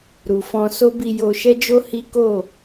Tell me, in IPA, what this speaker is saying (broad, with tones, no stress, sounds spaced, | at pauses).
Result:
ɾ u˨ f ɔ̃˧ s o˦ b i˧ j o˧ ʃ ɛ˦ d͡ʒ o˦ h i˦ k o˦˨